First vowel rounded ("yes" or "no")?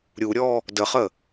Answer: yes